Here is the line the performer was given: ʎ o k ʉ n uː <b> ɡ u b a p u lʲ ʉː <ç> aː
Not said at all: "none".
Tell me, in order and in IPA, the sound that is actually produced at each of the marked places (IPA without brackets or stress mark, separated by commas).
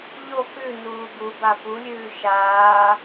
none, ʃ